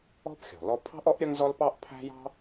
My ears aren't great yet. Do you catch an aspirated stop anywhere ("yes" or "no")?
yes